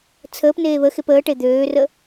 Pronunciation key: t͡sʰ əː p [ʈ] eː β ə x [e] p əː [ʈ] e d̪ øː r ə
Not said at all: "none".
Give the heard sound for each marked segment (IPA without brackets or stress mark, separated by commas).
n, e, ʈ